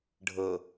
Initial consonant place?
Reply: retroflex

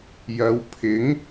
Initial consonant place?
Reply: palatal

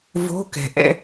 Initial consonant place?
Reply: labial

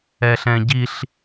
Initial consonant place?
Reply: alveolar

